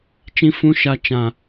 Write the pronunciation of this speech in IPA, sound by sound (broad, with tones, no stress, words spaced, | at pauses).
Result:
t͡ʃĩ˦fũ˦ʃa˦ t͡ʃã˦